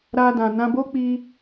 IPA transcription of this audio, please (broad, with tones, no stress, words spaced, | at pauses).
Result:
ɾa˧dã˨ nã˧bo˦k͡pi˧